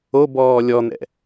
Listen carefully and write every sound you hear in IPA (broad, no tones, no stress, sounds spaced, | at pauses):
o b ɔː lʲ ɔ n̪ ɛ̰